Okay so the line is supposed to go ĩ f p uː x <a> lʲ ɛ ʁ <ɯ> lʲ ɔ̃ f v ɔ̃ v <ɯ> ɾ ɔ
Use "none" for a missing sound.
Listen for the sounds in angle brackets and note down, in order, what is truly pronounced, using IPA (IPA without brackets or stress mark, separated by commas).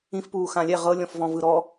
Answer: ã, ɤ, ɯ